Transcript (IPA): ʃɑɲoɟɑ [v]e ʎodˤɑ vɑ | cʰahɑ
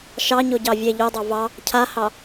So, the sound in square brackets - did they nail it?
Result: no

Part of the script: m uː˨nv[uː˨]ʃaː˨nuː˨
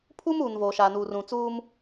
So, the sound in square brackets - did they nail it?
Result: no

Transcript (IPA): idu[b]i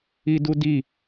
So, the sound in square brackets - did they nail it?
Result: no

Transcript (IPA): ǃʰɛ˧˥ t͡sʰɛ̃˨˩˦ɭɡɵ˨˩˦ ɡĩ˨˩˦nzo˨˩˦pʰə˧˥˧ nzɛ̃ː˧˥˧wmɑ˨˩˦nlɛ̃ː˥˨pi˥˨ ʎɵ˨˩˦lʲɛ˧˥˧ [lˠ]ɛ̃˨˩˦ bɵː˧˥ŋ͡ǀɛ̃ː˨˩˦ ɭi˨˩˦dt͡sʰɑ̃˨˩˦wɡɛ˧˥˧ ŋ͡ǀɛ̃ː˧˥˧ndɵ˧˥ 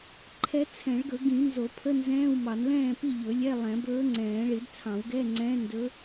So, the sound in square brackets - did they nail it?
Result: yes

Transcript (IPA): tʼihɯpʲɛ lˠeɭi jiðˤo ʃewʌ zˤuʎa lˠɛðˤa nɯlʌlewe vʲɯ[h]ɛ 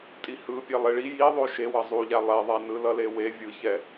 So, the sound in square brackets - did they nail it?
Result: no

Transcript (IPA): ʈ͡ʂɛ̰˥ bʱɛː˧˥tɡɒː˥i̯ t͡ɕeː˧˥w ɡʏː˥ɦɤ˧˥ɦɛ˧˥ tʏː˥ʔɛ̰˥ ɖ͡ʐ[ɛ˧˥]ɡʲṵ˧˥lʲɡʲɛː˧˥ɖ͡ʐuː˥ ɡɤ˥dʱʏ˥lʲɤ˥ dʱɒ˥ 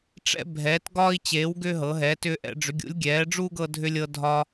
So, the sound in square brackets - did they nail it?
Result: no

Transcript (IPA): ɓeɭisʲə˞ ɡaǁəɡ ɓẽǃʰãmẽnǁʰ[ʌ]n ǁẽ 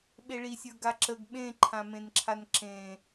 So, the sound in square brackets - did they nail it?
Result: no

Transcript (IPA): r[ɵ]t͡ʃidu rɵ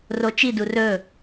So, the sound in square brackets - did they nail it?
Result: no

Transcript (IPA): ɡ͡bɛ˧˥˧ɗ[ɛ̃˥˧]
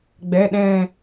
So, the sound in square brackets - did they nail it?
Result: yes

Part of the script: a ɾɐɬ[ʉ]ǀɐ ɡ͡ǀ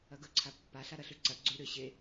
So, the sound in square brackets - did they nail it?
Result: yes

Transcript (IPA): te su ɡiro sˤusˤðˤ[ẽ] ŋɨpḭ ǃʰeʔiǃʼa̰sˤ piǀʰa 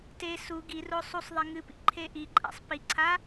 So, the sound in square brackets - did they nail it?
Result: no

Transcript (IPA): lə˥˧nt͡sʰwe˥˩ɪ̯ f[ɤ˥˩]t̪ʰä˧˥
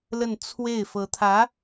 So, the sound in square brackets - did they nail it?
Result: no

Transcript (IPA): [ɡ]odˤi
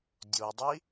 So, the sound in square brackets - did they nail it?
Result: no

